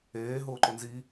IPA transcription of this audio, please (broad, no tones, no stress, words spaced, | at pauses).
eː ɦʊːǃʊnzi